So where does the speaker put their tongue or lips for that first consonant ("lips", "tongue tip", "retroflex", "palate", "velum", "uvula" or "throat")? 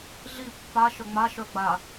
tongue tip